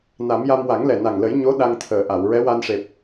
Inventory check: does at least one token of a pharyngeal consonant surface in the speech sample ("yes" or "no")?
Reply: no